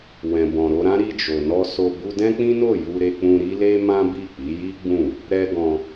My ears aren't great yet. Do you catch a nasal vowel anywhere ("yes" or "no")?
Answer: yes